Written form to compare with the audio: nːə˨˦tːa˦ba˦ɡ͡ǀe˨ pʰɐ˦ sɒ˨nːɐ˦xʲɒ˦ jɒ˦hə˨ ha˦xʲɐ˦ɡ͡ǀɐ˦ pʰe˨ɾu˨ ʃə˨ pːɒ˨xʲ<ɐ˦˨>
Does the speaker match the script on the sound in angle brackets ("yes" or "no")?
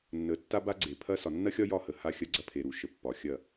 yes